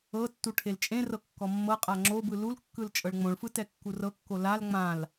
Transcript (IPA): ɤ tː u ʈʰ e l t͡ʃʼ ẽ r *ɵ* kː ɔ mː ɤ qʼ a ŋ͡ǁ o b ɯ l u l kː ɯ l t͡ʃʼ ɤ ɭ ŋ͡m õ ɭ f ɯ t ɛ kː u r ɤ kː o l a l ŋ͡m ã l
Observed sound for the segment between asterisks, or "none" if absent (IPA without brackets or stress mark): ɤ